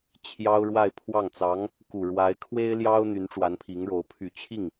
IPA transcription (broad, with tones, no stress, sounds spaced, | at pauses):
t͡ɕʰ j ɑ˥ ʊ̯ ɻ w a˥˧ ɪ̯ pʰ w ɑ˥˩ ŋ t͡s ɑ˧˥ ŋ | k u˨˩ ɻ w a˧˥ ɪ̯ kʰ w e˥ ɪ̯ l j ɑ˥ ʊ̯ n̪ y˧˥ n ʈ͡ʂ w a˧˥ n pʰ i˧˥ ŋ ɻ o˧˥ ʊ̯ pʰ y˨˩ t͡ɕʰ i˥˩ ŋ